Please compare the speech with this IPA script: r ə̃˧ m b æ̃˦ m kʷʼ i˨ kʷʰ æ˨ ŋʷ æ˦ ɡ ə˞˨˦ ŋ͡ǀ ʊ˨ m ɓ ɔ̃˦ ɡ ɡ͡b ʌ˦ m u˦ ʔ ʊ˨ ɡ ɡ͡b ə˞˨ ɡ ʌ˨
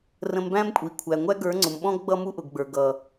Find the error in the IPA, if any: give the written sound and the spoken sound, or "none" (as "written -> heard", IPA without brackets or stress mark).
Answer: none